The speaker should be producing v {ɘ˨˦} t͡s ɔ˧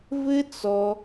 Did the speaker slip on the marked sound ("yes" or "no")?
yes